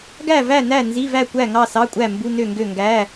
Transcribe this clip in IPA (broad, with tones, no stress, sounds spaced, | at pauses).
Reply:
ɡ æ˥˨ v æ˥˨ n æ˥˨ n z i˧˥˧ v æ˥˨ kʷ æ˥˨ ŋ ɑ˥˨ s ɑ˧˥˧ kʷʼ æ˥˨ m b u˧˥˧ n ø˥˨ ŋ ɡ ø˥˨ ŋ ɡ æ˧˥˧